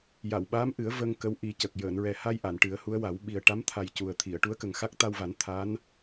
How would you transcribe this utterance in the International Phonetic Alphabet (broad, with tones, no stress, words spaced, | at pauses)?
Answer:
ja˨˩˨wɓaː˧˥mʔɨ˨˩˦ə̯ və˧ŋ kə˧˥wʔi˨˩˦cə˨˩k̚ jəː˨˩˨nɹɛ˨˩ha˧j ʔa˨˩˨nʈɨ˨˩˦ə̯hu˧˥ə̯wa˨˩˦w ɓi˨˩ə̯ʈa˧˥mt̪ʰa˨˩j cu˨˩ə̯t̪ʰi˨˩˨ə̯ ʈu˧˥ə̯kə˨˩ŋxa˦˥k̚ t̪a˧wva˨˩˦n t̪ʰa˧˥n